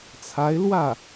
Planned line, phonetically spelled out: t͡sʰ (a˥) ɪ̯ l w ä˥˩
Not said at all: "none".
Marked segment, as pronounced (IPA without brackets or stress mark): a˧˥